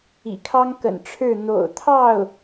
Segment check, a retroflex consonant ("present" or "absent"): present